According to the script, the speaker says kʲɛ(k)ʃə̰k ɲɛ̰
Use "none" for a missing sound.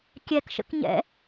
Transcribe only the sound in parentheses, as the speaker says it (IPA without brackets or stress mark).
k